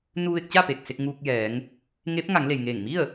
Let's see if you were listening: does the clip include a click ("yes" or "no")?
no